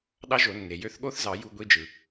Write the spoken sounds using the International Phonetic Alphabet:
ɗ ɑ˦˥ ʒ o˨˩˦ nː e˩ j ø˧˥˧ θ ɠ o˦˥ θ z ɑ˨˩˦ j u˧˥˧ ɡʷ i˧˥˧ d͡ʒ ɯ˩

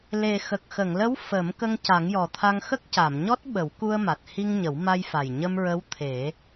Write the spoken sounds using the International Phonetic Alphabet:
l e˨˩ x ə˨˩ k̚ x ə˨˩˨ ŋ l ə˧˥ w f ə˨˩˦ m k ə˧ ŋ c a˨˩˦ ŋ j ɔ˨˩ t̪ʰ a˧ ŋ x ə˦˥ k̚ c a˨˩˨ m ɲ ɔ˦˥ t̚ ɓ ə˨˩˦ w k u˧ ə̯ m a˨˩ t̚ h i˧ ŋ ɲ ə˨˩˦ w m a˧ j f a˨˩ j ɲ ə˧ m ɹ ə˧˥ w t̪ʰ e˨˩˦

